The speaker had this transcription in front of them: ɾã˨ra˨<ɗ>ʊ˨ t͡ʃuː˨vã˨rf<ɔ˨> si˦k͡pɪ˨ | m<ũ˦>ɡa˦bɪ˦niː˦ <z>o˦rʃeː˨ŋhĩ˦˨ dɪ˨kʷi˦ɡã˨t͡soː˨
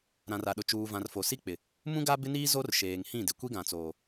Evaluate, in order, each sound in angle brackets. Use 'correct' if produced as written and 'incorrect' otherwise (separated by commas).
correct, incorrect, correct, correct